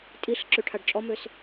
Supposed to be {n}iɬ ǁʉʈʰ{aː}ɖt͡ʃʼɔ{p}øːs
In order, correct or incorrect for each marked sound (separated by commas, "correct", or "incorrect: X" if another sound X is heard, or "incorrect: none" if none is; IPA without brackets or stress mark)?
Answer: incorrect: tʼ, incorrect: a, incorrect: m